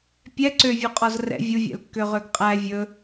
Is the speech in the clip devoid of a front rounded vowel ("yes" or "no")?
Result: no